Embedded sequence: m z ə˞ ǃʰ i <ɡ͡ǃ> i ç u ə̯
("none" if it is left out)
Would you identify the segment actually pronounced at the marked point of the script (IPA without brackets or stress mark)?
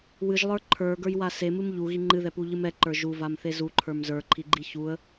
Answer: ɡ͡ǃ